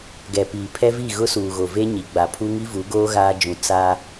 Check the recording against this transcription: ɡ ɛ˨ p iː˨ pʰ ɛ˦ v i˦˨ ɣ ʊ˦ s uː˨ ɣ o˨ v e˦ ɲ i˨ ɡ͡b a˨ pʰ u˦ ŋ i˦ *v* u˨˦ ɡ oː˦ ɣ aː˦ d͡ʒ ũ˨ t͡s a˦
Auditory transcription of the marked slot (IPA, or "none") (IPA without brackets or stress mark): v